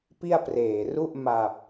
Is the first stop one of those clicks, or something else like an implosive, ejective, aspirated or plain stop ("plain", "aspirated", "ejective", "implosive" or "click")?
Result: plain